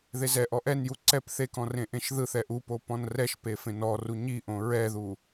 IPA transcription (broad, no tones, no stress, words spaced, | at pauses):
ðezɛʔɔ ʔɛnju ǀɛp θekɔ̃ rẽʔẽʃðɯθɛ ʔupo pɔ̃nrɛʃpe fẽnɔru ɲiʔõ ɹɛðu